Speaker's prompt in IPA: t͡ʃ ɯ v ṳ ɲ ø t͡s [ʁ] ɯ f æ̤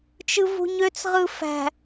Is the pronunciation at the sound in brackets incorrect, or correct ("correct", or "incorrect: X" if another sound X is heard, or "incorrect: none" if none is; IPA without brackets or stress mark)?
correct